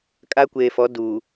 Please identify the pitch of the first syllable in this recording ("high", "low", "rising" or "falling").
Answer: high